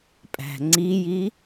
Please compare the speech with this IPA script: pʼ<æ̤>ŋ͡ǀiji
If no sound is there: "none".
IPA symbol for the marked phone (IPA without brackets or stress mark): æ̤